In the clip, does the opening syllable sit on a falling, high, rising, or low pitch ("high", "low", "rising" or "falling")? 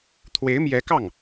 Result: rising